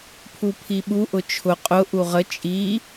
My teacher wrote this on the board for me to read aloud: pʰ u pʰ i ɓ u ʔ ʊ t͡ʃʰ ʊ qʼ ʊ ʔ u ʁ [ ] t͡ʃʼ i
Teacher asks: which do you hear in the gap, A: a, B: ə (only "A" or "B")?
B